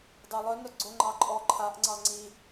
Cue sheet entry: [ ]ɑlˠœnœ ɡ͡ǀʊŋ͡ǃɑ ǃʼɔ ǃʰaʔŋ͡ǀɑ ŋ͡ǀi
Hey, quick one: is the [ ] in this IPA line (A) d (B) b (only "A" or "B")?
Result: A